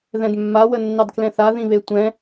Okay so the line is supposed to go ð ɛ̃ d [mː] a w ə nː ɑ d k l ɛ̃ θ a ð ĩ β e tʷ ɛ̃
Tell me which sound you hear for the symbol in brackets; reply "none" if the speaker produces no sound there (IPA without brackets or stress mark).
mː